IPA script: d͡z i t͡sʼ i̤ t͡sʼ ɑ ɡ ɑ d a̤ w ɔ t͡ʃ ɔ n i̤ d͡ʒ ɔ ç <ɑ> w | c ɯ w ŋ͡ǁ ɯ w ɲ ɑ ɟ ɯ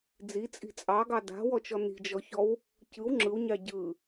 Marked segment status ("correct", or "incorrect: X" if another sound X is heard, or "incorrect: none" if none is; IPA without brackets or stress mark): incorrect: ɔ